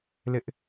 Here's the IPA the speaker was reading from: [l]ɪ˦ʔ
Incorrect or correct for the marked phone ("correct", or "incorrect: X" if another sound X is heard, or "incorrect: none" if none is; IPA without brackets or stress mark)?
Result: correct